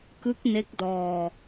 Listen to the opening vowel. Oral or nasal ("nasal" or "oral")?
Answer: oral